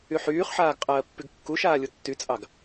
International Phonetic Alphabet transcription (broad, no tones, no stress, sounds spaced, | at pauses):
y ħ yː χ ħ aː ɡ qʼ ɜː pː y ɡ kː u ʃ aː lʲ u tː y t͡sʼ ɑ ɡ